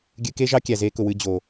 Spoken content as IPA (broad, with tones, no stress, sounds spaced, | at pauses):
ɡʲ ɨ˧ k e˦ ʒ ɑ˦ kʲ æ˨ z e˧ k ʊ˨ w ɨ˧ d͡ʑ o˨